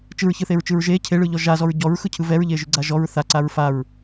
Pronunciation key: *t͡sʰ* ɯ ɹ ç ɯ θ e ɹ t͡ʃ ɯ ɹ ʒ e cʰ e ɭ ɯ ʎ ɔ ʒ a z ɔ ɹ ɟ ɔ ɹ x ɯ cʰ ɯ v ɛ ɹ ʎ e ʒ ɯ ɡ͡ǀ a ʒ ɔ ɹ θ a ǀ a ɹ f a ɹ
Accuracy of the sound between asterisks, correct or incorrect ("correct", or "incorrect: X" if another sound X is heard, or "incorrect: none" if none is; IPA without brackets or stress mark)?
incorrect: t͡ʃ